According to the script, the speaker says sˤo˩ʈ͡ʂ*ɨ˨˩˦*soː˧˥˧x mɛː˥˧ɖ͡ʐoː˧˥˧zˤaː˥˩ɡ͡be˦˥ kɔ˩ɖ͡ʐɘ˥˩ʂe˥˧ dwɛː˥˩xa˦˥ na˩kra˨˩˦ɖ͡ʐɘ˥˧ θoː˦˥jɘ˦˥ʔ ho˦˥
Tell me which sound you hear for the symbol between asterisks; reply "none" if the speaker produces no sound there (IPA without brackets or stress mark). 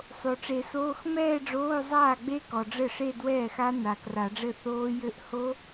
e˨˩˦